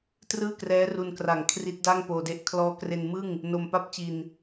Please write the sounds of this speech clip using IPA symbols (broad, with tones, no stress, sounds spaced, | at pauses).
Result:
t r ɯː˥˩ k r ɛː˦˥ r u˧ n k r a˨˩ ŋ kʰ r i˦˥ t̚ d a˥˩ ŋ p oː˧ d e˦˥ ʔ kʰ l ɔː˦˥ k r e˧ n m ɯ˥˩ ŋ | n o˧ m p a˥˩ p̚ t͡ɕ i˧ n